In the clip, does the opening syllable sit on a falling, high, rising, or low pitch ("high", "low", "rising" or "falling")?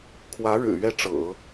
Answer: rising